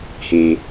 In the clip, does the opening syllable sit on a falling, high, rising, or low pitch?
high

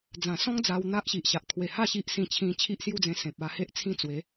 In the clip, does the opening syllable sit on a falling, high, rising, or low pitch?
low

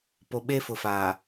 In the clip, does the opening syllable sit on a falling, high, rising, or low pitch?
low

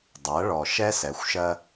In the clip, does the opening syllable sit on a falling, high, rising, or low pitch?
rising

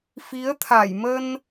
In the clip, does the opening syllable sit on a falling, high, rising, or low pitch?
rising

